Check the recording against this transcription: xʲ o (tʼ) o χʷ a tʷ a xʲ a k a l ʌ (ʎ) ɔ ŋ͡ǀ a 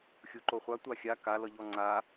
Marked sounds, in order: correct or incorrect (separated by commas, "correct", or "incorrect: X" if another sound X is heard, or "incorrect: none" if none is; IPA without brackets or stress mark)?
incorrect: ǃ, correct